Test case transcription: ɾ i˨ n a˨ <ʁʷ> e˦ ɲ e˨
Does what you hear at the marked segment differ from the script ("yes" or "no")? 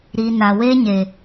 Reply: yes